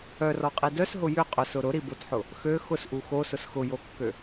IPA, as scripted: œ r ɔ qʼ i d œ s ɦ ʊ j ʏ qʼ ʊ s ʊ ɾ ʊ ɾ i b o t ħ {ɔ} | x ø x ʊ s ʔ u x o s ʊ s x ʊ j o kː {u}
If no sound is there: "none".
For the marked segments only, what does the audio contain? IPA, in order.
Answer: ʊ, ø

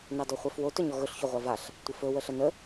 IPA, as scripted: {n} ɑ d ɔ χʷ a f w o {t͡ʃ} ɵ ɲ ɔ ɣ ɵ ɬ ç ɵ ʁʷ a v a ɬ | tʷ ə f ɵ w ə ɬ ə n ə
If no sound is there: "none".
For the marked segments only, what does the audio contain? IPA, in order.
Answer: n, t

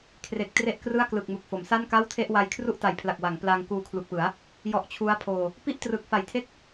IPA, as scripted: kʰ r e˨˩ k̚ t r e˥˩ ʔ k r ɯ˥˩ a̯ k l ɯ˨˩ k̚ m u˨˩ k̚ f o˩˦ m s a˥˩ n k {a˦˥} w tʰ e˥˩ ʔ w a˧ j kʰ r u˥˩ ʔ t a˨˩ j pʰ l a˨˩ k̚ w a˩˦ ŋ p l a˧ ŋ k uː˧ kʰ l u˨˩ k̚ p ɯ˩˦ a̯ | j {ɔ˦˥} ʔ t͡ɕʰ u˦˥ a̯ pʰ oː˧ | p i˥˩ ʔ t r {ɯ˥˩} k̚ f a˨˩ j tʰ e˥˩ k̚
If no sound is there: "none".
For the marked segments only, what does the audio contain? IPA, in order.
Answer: a˥˩, ɔ˦˥, ɯ˨˩

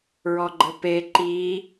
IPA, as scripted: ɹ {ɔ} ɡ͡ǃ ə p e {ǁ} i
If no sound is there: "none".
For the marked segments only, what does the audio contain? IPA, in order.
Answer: ɔ, ǃ

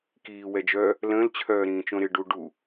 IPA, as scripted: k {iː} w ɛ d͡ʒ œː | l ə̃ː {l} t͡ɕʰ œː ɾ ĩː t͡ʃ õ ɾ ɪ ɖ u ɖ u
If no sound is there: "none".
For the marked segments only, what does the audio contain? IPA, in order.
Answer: iː, l

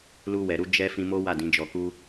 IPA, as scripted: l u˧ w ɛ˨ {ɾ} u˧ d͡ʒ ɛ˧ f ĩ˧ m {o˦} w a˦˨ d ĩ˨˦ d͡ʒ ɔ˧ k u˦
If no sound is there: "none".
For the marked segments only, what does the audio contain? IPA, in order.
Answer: ɾ, o˦

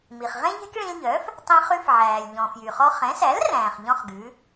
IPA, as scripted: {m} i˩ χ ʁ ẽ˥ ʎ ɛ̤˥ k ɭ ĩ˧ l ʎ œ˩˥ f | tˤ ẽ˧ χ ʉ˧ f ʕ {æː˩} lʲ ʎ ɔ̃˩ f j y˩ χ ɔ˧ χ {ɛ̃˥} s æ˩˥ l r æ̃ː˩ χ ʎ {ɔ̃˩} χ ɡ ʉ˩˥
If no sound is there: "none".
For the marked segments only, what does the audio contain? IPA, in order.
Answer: m, æː˩, ɛ̃˩˥, ɔ̃˥

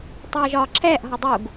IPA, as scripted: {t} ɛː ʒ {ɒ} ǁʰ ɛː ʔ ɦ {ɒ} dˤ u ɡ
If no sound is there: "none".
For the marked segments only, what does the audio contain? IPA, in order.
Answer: tˤ, ɒː, ɒ

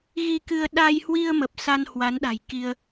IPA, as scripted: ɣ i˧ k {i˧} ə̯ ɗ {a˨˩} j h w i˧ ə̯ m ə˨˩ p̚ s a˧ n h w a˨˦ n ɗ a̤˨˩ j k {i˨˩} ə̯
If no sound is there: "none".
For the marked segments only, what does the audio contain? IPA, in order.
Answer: ɨ˧, a˧, i˧

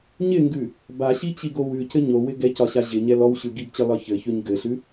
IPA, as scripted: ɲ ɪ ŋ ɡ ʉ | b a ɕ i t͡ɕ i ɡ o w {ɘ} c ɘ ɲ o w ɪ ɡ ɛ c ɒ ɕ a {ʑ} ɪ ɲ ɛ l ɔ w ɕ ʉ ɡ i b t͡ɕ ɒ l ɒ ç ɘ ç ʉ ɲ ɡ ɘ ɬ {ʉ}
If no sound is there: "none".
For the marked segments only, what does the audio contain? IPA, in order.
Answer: ʉ, ʑ, ʉ

